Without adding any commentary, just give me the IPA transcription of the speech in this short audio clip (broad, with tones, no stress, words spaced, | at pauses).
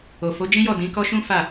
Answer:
o˨fo˨˦d͡ʒĩ˦jɔ˦˨ dĩ˨˦kɔ˦ʃũ˦ fa˦˨